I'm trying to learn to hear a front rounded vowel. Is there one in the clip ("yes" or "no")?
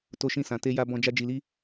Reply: no